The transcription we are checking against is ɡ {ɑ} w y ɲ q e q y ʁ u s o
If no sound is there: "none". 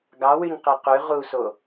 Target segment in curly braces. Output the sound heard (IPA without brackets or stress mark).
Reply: ɑ